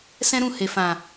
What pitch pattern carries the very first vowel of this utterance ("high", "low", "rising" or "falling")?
high